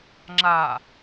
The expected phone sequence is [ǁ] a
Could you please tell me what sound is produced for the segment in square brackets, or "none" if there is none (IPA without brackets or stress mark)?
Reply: ŋ͡ǁ